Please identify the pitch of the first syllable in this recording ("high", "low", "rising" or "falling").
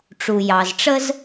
low